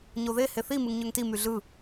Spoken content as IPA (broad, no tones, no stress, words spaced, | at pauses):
ɲoðe heθi mɯŋɲøŋti myɮɯ